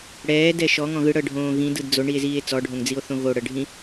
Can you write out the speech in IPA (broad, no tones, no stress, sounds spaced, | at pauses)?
ɽ ɛː d ɛ ʃ ɔ ŋ ɔ̃ ɣ ɯ ɽ ɤ ɖʱ õː ɣ ĩ d ɯ d d͡z o ɳ i e̯ z iː e̯ t͡s ɔ ɖʱ õ ŋ d͡z i o̯ θ õ ɣ o ɽ ɤ ɖʱ ĩ